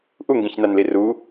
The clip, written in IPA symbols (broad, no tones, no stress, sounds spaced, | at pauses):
ʔ u ŋ ɡ ĩ ç n a n l i r u